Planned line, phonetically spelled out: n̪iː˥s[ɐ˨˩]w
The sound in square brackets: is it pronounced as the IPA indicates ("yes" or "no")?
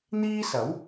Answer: no